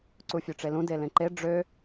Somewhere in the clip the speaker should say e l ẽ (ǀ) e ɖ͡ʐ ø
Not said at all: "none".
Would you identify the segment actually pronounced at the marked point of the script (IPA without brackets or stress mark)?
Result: ǃ